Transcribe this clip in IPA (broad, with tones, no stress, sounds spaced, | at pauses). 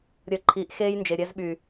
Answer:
ɾʲ əː˨ ǃʰ iː˨ ʔ x eː˦ j n d͡ʒ e˨ ɾʲ ɛ˦ z ɓ yː˨